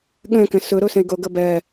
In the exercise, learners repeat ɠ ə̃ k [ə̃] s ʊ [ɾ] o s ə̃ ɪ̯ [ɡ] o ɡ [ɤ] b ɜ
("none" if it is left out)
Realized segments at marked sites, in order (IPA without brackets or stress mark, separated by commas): ə̃, ɾ, ɡ, ɤ